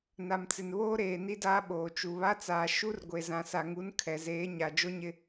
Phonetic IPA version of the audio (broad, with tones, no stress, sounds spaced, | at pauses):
n a˨ m t͡s ɪ˨ n β oː˦ ɾ eː˨ n i˦ d aː˦ ɓ oː˨ t͡ʃ u˨ β a˦ t͡s aː˨ ʃ u˦ r ɡʷ e˨ z ã˨ s a˨ ŋ u˨˦ n kʰ ɛ˨ z eː˨˦ ɲ a˨ d͡ʒ o˦ ɲ ɪ˦